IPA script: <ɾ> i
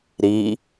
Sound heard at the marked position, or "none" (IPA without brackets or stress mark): ɾ